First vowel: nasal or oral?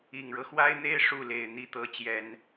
oral